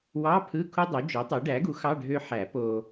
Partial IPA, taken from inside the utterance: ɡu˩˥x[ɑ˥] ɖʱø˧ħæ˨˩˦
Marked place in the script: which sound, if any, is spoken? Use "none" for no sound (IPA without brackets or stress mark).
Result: ɑ˧˥˧